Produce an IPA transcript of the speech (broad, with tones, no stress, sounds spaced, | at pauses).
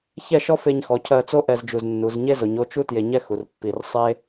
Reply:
ç ɛ˥˧ ʃ ɔ˥ f e˧ ɲ x ɔ˩˧ cʰ ɜ˧ t͡s o˥ ʔ ɛ˧ z d͡ʒ u˧˩ z nː u˩˧ z ɲ e˥ z o˩˧ ɲ o˥˧ t͡ʃ u˥ t j e˧ ɲ ɛ˥ x u˩˧ r pː i˧˩ r sˤ e˥